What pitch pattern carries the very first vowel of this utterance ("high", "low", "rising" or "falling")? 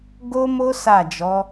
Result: high